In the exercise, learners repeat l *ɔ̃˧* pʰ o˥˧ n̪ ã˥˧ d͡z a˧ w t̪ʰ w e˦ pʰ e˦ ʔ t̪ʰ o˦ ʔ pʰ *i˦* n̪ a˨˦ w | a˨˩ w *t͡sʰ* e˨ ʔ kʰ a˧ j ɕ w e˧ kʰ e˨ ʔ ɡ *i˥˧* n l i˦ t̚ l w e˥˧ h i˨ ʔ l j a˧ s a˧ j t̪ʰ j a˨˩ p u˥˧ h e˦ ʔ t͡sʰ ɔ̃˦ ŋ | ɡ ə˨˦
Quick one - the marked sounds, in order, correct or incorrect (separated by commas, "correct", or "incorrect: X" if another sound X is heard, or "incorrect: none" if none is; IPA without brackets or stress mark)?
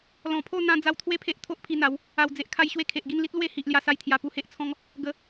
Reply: incorrect: ɔ̃˨˩, incorrect: i˧, incorrect: d͡z, correct